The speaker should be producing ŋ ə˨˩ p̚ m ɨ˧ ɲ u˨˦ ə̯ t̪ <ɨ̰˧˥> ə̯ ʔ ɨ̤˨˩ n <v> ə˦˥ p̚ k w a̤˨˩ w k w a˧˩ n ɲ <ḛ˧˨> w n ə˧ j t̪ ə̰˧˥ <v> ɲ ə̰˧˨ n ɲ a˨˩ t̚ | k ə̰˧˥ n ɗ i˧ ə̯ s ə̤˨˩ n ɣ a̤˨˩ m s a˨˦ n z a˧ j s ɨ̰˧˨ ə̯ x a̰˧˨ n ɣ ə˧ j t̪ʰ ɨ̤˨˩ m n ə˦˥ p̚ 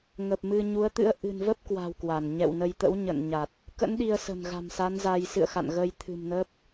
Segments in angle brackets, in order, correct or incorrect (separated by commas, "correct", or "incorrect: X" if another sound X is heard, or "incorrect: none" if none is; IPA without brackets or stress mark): correct, correct, incorrect: ɛ̰˧˨, incorrect: w